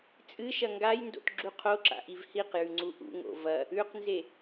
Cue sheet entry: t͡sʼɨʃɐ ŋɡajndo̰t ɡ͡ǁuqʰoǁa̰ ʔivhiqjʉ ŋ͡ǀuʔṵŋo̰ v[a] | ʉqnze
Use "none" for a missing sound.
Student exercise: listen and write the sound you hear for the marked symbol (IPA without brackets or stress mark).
ɐ